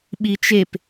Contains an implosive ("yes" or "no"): yes